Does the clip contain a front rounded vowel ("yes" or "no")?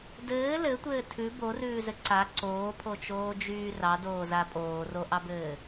yes